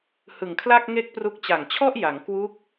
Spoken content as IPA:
h ɯ˨˩ ŋ kʰ l a˥˩ k̚ ŋ e˥˩ k̚ p r u˦˥ k̚ t͡ɕ a˨˩ ŋ t͡ɕʰ ɔ˥˩ ʔ j a˩˦ ŋ k w u˦˥ k̚

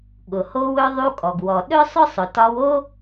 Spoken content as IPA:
ɠ ʊ˩ h o˧ w ɵ˧ ðˤ u˧ kʼ ɔ˩ ɡ w ɔ˩ ɗ ɵ˥ sˤ ʊ˥ sˤ ʊ˩ t ɒ˧ w o˥

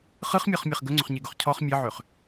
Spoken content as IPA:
χ ɯ χ mʲ ɔ χ mʲ ɛ χ ɡ ɵ ŋ͡ǀ ɵ χ ɲ e ɡ ɵ χ cʰ ɔ χ mʲ ɘ ʕ ø χ

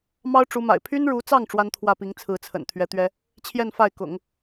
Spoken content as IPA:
m ɑ˥ ʊ̯ ʈ͡ʂ u˧˥ m a̰˨˩ ɪ̯ pʰ y˥ n ɻ u˧˥ t͡s ɑ˥˩ ŋ ʈ͡ʂ w a˥ n t̪ʰ w ä˥˩ p i˧˥ ŋ t͡sʰ ɹ̩˧˥ t͡sʰ ə̰˨˩ n t̪ʰ ɥ ɛ˧˥ t̪ ɥ ɛ˥ | t͡ɕʰ j ɛ˥˧ n f a˥˩ ɪ̯ k ʊ̰˨˩˦ ŋ

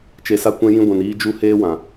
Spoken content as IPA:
t͡ʃ e˨ s a˧ kʷ ɛ̃˧ j ĩ˧ ɡʷ ɛ̃˨ n iː˦ d͡ʒ u˦ h eː˦ w ã˨

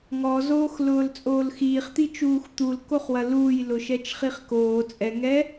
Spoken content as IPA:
ŋ ɔ z oː x l ʊː l t͡sʼ oː l x iː χ t̪ i t͡ʃ uː x t̪ u l k o χ w ɐ l uː j l ʊ ʃ ɛ t͡ʃ χ i χ k oː t͡sʼ ɛ ŋ ɛː

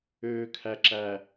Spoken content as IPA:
øː˨ kʰ æ˨ ǁ æ˨

